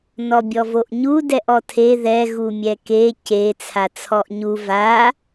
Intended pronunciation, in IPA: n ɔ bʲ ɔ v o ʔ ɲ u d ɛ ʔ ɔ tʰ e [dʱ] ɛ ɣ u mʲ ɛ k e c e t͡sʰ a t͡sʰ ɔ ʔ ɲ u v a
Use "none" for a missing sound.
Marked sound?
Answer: ð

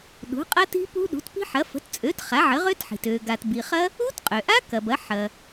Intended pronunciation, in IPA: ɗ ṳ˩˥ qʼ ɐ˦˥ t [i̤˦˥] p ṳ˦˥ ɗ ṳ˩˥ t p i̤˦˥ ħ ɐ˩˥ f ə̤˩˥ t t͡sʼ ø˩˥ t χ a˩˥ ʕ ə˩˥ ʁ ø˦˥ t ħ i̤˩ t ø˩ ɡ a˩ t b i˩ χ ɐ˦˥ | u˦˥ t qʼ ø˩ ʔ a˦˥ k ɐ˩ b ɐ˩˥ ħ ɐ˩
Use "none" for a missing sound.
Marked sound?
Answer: i̤˦˥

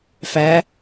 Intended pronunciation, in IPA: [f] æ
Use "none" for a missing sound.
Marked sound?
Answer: f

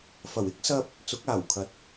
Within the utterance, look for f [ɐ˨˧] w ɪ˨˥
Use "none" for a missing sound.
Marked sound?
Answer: ɐ˨˩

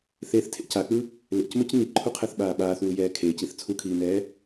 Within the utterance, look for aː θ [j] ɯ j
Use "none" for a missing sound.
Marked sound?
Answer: w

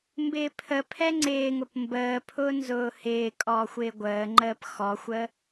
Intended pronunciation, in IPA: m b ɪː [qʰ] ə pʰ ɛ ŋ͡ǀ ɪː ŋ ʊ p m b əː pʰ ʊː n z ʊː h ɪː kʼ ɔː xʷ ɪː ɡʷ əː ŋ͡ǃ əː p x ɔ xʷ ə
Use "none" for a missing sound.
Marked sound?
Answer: pʰ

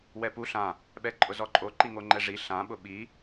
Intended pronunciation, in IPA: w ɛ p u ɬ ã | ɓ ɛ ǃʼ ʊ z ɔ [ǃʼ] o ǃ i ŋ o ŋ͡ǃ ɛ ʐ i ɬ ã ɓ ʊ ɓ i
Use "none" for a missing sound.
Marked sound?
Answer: ǃʼ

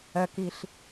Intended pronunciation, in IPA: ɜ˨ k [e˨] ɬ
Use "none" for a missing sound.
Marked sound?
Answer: i˨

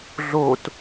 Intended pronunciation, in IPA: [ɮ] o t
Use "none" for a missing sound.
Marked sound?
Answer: ɮ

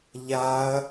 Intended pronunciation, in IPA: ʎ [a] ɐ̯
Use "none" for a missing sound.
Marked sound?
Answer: a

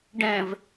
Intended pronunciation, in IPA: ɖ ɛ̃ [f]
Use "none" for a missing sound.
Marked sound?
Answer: v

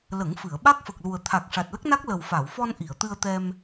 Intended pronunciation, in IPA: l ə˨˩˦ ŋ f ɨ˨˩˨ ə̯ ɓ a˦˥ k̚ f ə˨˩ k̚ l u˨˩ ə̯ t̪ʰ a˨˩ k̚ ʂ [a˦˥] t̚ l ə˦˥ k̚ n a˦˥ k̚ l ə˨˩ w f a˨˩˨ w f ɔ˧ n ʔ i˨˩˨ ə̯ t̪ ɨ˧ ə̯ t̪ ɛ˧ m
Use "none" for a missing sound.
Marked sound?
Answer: a˨˩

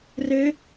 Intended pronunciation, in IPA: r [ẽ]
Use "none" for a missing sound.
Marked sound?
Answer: e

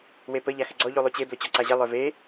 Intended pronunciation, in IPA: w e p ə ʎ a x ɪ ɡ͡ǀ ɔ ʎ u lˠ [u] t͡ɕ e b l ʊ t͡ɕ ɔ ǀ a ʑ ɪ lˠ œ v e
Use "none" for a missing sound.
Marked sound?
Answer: u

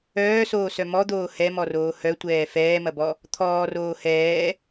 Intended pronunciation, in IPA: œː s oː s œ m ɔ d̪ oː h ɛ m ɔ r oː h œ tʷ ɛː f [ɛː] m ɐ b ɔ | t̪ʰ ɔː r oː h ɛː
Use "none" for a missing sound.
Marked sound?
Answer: ɛː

